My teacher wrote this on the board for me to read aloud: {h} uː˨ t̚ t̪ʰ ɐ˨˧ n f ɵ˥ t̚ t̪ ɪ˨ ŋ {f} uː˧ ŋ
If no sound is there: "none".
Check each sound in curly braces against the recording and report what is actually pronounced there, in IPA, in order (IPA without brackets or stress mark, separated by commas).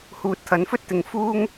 h, f